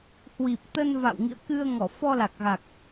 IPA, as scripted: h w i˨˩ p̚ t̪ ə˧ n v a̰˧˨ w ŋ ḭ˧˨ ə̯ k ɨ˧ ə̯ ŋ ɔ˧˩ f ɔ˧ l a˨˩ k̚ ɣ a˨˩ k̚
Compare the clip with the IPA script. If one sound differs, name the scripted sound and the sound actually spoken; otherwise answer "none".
none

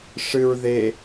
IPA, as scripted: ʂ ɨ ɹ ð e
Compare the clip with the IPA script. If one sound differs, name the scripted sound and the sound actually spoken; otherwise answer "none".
none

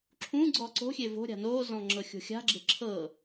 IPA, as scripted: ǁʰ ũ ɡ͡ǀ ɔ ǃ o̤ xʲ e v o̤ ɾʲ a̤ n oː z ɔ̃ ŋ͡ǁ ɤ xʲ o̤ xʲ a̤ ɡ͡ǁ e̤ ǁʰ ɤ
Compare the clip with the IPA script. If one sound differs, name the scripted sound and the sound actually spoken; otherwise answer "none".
ǃ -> ǀ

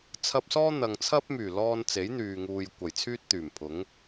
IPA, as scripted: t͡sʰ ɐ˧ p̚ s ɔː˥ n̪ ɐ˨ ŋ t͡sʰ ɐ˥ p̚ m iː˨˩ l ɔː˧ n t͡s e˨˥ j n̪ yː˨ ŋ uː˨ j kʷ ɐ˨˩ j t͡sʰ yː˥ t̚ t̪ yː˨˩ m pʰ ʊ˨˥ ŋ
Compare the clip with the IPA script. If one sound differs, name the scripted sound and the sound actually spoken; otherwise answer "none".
iː˨˩ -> yː˨˩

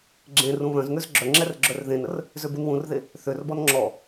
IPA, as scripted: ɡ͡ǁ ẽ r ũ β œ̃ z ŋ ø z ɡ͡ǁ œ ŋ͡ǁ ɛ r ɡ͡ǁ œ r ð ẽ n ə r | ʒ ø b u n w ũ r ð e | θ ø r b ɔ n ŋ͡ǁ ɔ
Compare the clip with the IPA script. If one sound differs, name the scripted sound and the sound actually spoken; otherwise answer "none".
ʒ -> z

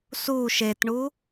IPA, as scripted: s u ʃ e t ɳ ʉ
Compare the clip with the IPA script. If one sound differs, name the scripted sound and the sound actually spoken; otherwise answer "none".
ʉ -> u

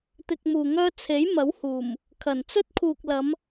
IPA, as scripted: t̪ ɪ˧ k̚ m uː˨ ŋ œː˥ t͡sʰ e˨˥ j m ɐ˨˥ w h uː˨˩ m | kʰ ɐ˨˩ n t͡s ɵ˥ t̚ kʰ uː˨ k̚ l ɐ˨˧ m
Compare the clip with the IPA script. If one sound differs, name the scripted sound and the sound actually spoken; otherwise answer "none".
none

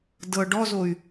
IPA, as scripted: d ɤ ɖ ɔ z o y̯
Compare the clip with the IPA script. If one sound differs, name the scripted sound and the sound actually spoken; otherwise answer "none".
none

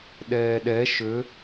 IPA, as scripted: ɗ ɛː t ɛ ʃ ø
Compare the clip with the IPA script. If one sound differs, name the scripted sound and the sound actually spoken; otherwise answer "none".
t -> ɗ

